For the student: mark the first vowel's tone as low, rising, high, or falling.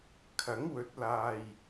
rising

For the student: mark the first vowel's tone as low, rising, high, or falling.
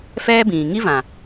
high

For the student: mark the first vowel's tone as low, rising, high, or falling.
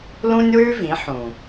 high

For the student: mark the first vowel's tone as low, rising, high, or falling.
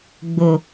low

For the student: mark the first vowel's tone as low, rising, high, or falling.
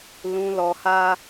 low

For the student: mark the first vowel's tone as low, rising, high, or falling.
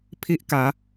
high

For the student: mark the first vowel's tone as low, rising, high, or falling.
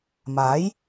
rising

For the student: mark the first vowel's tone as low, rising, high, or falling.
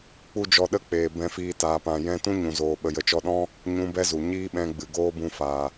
high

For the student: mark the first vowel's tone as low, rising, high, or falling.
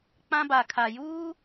high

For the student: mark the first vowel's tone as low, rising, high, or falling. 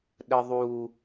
low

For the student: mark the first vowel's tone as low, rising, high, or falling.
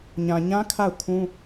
low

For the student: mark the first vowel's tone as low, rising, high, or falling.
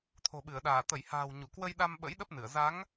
low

